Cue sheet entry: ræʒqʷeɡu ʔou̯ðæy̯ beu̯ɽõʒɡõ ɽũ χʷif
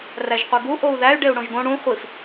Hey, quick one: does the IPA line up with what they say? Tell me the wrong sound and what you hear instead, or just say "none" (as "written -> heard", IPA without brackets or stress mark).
b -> ɖ